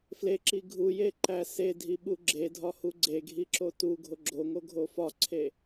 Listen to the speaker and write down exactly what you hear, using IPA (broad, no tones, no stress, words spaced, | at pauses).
fleǁi ɡʱujeǃæ sedʱiɓu ɡ͡ǁedʱɒhu ɡ͡ǀeɡʱiǁo tuɡʱo ɡ͡ǁoŋoɡʱo fɒǀʰe